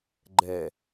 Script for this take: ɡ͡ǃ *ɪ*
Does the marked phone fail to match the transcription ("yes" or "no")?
yes